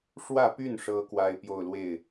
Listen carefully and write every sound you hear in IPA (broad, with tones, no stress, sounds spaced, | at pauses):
ʂ w ä˥˧ p y˥˩ n ʂ ɤ˥ k w a˥ ɪ̯ p j o˥˧ ʊ̯ l w e˥˩ ɪ̯